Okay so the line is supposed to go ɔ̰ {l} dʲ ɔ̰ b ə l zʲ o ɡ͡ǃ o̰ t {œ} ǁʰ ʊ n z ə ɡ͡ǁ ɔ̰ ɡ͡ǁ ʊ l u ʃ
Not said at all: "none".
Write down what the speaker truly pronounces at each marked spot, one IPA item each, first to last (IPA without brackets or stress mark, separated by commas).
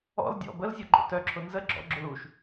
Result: l, œ